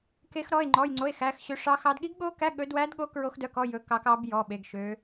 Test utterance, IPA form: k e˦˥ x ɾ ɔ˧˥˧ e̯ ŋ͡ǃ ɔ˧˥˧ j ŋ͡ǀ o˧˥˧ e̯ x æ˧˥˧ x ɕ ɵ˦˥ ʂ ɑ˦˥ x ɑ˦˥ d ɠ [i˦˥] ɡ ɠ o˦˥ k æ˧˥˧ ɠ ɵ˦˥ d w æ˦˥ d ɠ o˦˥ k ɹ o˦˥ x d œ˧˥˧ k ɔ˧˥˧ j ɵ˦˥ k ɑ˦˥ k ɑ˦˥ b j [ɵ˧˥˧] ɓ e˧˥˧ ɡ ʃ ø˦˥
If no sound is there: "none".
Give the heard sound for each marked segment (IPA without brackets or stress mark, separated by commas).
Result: i˦˥, ɔ˧˥˧